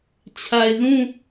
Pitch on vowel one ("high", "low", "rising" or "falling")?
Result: low